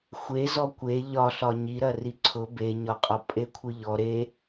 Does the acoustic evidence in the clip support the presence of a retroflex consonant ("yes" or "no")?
no